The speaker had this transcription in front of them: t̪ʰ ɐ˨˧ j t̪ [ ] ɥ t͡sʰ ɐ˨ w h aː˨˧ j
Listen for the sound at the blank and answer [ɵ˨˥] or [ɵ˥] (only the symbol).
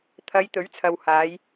ɵ˨˥